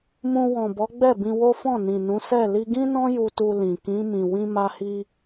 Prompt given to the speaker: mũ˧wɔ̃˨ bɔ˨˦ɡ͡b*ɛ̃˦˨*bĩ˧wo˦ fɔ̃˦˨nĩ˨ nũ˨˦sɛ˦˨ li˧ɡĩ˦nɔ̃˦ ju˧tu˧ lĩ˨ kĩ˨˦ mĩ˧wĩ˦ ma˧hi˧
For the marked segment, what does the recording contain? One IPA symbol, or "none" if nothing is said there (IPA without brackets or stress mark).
ɛ˦˨